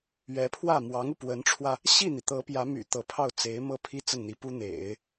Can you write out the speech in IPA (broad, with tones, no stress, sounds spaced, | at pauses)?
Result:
ɥ ɛ˧˥ pʰ w ä˥˩ m w ɑ˧˥ ŋ u˧ p w ə˧˥ n ʈ͡ʂʰ w ä˧ | ɕ i˥˩ n̪ i˩ t̪ ɤ˧˥ p j ä˧˥ m y̰˨˩ t̪ ɤ˧˥ pʰ ɑ˥˩ ʊ̯ t͡s e˧˥ ɪ̯ m ɤ˥˧ pʰ i˥˧ t͡s ə˥˩ n n̪ i˧˥ p u˥ n̪ ḛ˨˩˦ ɪ̯